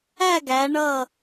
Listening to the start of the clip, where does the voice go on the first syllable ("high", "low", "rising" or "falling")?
falling